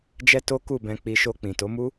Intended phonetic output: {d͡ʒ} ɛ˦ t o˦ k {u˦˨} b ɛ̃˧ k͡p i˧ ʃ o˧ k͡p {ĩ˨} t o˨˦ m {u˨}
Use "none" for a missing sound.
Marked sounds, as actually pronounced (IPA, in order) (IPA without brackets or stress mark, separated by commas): d͡ʒ, u˦˨, ĩ˨, u˦